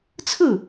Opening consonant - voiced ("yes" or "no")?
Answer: no